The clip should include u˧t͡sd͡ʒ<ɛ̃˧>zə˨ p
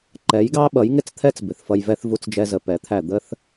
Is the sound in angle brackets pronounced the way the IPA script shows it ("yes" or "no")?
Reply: no